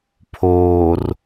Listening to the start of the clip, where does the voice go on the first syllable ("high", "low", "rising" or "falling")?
low